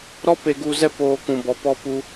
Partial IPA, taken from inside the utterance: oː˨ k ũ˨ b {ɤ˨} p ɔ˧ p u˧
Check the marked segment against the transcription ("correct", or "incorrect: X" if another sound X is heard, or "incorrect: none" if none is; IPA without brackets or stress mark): incorrect: ɔ˨